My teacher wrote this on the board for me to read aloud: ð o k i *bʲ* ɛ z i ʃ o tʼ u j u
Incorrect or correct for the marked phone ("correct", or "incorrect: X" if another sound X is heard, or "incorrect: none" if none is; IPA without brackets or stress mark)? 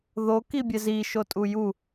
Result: correct